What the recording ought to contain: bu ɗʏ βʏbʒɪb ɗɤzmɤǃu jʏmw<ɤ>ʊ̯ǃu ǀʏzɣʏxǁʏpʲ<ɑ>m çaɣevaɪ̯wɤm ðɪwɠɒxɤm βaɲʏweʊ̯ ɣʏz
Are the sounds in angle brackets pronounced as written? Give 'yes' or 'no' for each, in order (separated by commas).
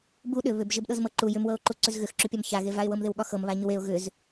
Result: yes, no